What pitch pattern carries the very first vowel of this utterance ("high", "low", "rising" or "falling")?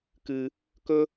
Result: high